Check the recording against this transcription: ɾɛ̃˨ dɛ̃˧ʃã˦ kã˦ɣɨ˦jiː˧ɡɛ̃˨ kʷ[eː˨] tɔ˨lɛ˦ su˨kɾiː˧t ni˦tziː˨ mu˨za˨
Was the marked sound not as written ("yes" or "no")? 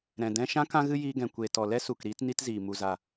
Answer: no